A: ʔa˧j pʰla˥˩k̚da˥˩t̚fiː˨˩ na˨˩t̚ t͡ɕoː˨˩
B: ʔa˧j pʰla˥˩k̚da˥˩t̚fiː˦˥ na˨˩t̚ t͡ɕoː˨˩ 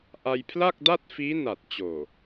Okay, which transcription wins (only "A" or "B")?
B